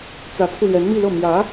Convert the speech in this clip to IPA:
t͡s ä˧˥ t͡sʰ u˧ l ɥ ɛ˧˥ n m i˥˧ l ɤ˥˩ m j ä˧˥

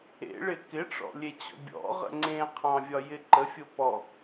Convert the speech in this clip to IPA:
ḛ ɭ ɪ k ɪ ʈ͡ʂ ɔ̰ lʲ e t͡ɕ ɔ̰ bʲ ɔ̰ ʁ ə̰ ŋ͡ǀ ẽ qʰ ɑ̃ vʲ ɒ j ɪ ǃ ə fʲ o p ɔ

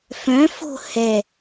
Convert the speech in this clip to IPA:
f œ̃ f o̤ h ɛ

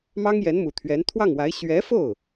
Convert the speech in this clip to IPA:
m ɑ˥ ŋ j ɛ˧˥ n m u˨˩ t̪ʰ ɥ ɛ˧˥ n t̪ʰ w ɑ˥˩ ŋ w a˧˥ ɪ̯ ɕ ɥ ɛ˧˥ f o˥˩ ʊ̯

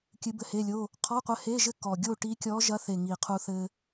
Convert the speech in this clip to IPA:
kʲ ɨ˧˥ b ɘ˧˥˧ h e˧˥˧ lʲ o˧˥˧ | qʰ ɔ˧˥˧ qʷ ɘ˧˥ h e˧˥˧ ʒ ɘ˥˧ k ɔ˨˩ ɡʲ o˥˧ ʈ i˧˥ kʲ ɔ˧˥ ʒ ɐ˧˥ θ e˨˩ ŋ i˨˩ qʰ u˧ θ ɘ˧

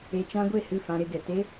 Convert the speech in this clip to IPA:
e˧ t͡ʃ ã˦ ɡʷ e˦˨ h ɨ˦˨ f ã˧ ɾ e˧ ɡ ɛ˨ t e˦

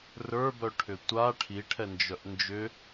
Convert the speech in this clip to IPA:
r ə˞ b œ ʈʰ ʏ tʷ a ʈʰ i ʈʰ ɛ n d͡ʒ œ ʔ n d͡ʒ ʏ

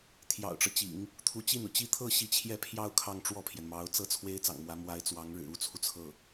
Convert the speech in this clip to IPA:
t̪ʰ j ɑ̰˨˩ ʊ̯ ʈ͡ʂ ɤ˦ t͡ɕ ḭ˨˩˦ ŋ | t̪ʰ u˧˥ t͡ɕ i˥˩ n u˩ t͡ɕ i˥˧ t̪ʰ ɤ˥˧ ɕ i˥˧ t͡ɕʰ j ɛ˥˧ pʰ j ɑ˥˧ ʊ̯ kʰ ɑ˥˧ ŋ ʈ͡ʂ w ɔ˥˩ pʰ j ɛ˩ n m ɑ˧˥ ʊ̯ t͡s ɤ˥ t͡sʰ w e˥ ɪ̯ t͡s ɑ̰˨˩ ŋ m w ä˧˥ m w a˧˥ ɪ̯ t͡s w ɑ˧˥ ŋ ɻ ɻ̩˨˩ u˥ t͡sʰ u˨ t͡sʰ ɤ˥˩

